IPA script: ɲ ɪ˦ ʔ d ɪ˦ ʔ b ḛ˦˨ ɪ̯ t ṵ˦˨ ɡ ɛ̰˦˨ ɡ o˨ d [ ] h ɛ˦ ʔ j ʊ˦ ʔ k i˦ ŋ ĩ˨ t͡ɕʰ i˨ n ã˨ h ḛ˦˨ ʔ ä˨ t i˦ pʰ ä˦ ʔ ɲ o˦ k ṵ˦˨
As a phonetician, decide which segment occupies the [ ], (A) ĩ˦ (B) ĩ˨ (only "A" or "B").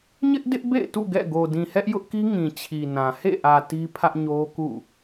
B